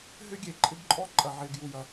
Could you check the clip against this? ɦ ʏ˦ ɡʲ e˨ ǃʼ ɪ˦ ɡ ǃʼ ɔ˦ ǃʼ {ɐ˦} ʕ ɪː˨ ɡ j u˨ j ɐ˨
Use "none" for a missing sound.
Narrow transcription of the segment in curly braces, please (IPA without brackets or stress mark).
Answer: ɐ˨